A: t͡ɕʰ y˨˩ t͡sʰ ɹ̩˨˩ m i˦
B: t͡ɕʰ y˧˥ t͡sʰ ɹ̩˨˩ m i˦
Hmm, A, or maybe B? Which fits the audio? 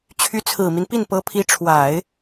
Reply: B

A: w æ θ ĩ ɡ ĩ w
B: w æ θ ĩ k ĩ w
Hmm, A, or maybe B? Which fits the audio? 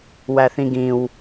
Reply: A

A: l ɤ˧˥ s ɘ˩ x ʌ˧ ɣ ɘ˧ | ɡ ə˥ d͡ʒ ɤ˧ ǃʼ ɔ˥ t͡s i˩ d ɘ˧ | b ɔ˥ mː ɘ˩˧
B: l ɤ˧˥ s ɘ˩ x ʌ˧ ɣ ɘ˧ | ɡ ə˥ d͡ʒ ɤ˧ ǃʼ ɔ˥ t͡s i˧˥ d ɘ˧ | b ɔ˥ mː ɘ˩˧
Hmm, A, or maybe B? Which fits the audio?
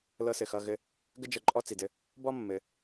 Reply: A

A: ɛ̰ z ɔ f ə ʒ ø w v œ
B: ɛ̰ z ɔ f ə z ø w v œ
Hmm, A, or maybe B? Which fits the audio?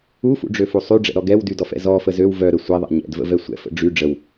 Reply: B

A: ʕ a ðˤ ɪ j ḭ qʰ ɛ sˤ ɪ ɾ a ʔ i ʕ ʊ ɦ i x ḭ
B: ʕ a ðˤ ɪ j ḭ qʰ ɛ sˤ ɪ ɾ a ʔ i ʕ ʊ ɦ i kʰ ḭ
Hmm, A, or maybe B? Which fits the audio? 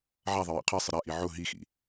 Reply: A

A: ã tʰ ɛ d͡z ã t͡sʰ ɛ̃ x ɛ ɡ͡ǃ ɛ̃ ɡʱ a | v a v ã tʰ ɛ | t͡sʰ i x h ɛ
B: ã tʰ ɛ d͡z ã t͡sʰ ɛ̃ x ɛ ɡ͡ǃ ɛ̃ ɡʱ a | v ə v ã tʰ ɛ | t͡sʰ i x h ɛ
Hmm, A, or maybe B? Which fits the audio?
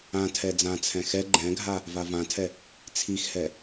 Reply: A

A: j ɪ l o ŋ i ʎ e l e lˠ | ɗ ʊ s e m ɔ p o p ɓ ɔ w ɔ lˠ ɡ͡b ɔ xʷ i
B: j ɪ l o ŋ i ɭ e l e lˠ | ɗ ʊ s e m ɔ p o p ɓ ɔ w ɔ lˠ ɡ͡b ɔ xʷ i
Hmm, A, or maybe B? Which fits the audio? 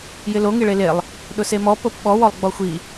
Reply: B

